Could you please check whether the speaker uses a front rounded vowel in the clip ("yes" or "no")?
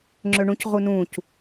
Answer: yes